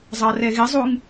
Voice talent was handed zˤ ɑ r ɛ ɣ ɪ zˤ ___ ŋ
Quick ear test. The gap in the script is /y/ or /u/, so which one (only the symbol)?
u